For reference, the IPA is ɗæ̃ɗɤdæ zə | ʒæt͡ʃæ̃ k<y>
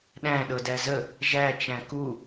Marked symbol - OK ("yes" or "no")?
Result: no